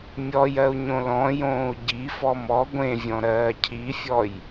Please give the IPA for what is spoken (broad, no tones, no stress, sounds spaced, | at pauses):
mʲ ɔ j ɜ u̯ ɲ õ l ɔ̃ j õː u̯ ɟ i f ɔ m ɔ ɡʷ ẽ vʲ ɔ̃ ɾ ɜː cʰ i fʲ ɔ j